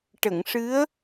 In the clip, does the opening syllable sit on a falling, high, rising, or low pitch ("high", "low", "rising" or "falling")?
low